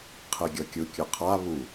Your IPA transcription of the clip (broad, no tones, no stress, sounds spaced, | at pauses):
qʰ e ɡʲ ʌ kʲ ɯ kʲ ɯ qʰ a β u